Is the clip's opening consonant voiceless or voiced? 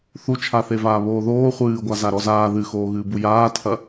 voiceless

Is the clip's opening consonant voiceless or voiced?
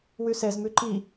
voiced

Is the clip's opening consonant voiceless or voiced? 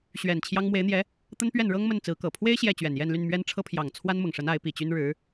voiceless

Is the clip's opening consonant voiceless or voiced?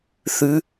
voiceless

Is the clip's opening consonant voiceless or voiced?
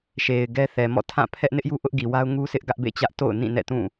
voiceless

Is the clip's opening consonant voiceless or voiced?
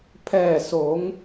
voiceless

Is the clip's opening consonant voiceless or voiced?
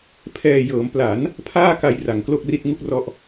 voiceless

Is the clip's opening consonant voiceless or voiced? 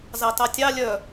voiced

